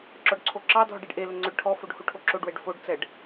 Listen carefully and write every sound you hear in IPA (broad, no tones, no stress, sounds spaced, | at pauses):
ǁ ɔ ɖ ǀʰ o ǁ ɑ dʱ ɔ ɖ ɛ ɖ ʔ e l ɵ ŋ͡ǀ ɵ ɖ ʈʰ ɔ f o ɖ h u ʈʰ o ǁ o ɖ w ɛ ɖ f o ɖ t͡s ɛ ɖ